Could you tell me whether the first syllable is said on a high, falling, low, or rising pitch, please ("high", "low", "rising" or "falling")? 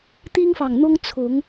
high